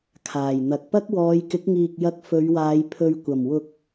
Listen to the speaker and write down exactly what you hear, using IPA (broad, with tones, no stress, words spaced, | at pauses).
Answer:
kʰaː˨˩j n̪ɐ˨k̚pɐ˥k̚ wɔː˨˧jkɪ˨˥k̚ŋiː˨k̚ jɐ˧k̚fɵ˨˧ɥwaː˨˧j pʰɵ˨ɥ kʷɐ˨˩mwʊ˨k̚